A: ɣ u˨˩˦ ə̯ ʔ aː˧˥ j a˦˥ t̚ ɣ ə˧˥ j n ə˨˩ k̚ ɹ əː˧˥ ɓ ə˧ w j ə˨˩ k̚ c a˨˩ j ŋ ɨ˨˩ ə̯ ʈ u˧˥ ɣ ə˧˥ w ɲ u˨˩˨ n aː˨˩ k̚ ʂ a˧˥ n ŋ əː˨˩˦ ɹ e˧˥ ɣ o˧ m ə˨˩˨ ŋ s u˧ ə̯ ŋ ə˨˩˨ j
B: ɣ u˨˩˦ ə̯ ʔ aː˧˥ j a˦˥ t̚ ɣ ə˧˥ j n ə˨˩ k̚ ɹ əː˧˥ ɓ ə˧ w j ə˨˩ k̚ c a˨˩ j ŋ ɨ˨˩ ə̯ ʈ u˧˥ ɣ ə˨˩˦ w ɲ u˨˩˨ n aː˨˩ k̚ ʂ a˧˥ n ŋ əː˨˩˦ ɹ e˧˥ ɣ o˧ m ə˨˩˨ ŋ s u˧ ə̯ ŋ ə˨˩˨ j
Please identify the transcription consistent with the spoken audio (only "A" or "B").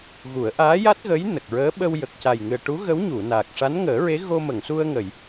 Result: A